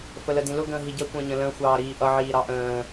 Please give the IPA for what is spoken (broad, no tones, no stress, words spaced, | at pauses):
fələdĩlʊ ɡə̃ːɦiɟə kʷə̃ːɲə̃lə̃ xʷɑːɾiːʔʌ ʕiːɾɑʔə̃ː